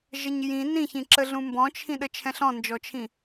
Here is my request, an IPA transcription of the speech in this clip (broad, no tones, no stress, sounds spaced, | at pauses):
ʒ ə ɲ j ĩ n ĩ ç ĩ ǁ ə ɮ ũ m b ɔ̃ t͡ʃʰ ĩ ɗ ə t͡ʃʰ ɛ̃ ɬ ɔ̃ n d͡ʒ ɔ t͡ʃʰ ĩ